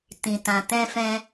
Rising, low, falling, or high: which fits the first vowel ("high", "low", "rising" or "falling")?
low